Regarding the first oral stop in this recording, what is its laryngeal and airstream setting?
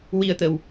plain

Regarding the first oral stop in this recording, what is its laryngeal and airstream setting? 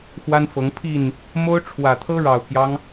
aspirated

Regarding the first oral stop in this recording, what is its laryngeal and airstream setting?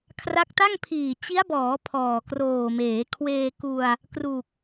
aspirated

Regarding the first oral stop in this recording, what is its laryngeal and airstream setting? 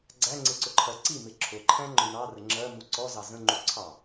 click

